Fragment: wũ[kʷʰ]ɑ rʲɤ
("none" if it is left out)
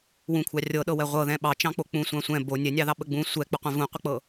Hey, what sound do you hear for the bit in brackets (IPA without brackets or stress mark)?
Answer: kʷʰ